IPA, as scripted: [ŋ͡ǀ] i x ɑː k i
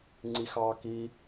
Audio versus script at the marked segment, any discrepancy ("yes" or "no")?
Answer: no